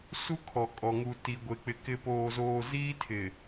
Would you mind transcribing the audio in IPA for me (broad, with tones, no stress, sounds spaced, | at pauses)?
s u˦ kʰ ɔ˨ kʼ ɔ˨ ŋ u˨ t i˨ ɡʷ e˨ k͡p ɪ˨ k ɪ˨ p oː˨ z oː˨ z iː˦ tʰ ɪ˨